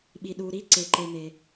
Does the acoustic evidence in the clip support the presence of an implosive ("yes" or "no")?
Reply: yes